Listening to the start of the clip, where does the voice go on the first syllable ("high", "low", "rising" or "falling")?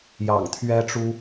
low